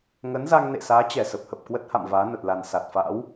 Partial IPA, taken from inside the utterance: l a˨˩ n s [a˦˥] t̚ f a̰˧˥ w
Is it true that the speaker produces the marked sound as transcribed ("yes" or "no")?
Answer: no